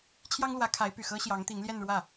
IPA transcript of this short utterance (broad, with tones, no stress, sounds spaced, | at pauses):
t͡ɕʰ j ɑ˥ ŋ l w ä˧˥ kʰ a˧˥ ɪ̯ p y˨˩ x ɤ˥ ɕ j ɑ˧˥ ŋ t̪ i˧˥ ŋ l j ɛ˥˧ n ɻ w ä˥˩